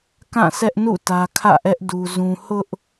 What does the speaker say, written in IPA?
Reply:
kã˦˨sʰɛ˦ʔnṵ˦˨ tä˦ kʰä̰˦˨ʔɛ˦ʔ du˦zũ˦ hʊ˦ʔ

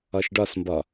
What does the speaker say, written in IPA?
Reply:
ɒʃɖɒsmbɒ

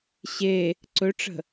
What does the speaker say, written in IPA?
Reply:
ɕe | ǀɵʈ͡ʂə̤

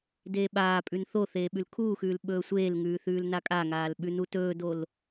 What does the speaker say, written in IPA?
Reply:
deːɓaːpʼʉn θoθeː ɓʉlkʰuːxʉːl ɓɵːsʷeːlŋʉː θʉːlnakʼaŋaːl ɓʉnutɵːdol

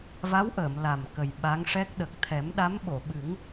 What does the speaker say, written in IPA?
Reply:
va˧˥wʔəː˨˩˨m la˨˩m kə˨˩jɓa˧˥ŋʂɛ˦˥k̚ ɗə˨˩k̚t̪ʰɛ˨˩˦mɗa˧˥m ɓo˨˩˨ɓɨ˨˩˦ŋ

